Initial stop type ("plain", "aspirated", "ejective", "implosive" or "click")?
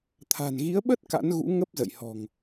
aspirated